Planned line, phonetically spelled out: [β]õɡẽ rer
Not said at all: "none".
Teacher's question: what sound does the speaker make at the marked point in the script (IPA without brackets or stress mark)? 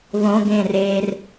β